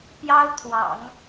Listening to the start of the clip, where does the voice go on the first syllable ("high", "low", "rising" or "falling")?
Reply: high